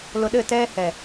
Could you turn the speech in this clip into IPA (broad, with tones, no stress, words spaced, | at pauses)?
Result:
lʊ˨ɗɘ˦˨tɛː˦ hɛ˨